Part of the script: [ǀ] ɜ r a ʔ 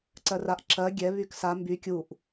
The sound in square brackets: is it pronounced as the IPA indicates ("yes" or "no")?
yes